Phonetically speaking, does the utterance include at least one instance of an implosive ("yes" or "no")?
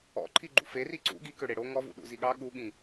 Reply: yes